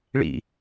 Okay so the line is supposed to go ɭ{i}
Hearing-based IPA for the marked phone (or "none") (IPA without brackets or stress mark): ḭ